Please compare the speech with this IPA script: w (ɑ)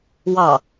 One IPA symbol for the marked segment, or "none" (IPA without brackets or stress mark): ɑ